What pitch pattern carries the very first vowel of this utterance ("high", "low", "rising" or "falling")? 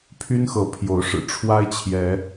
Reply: high